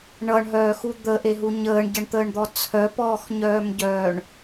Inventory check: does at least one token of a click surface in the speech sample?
no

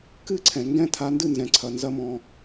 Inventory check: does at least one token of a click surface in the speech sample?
yes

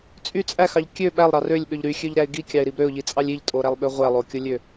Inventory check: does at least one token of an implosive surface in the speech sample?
yes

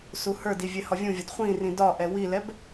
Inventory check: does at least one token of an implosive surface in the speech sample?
no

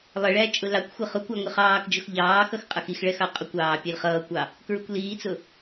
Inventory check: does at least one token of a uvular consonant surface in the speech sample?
yes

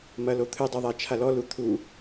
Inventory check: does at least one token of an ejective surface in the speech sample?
no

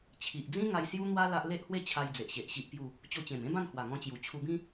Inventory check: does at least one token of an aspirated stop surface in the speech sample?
yes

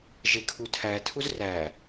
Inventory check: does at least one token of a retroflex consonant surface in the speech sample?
no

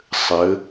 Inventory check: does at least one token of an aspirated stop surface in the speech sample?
no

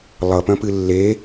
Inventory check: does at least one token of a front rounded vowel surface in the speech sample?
yes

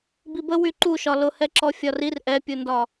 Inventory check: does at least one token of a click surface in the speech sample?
yes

